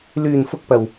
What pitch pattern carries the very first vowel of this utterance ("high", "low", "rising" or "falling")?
low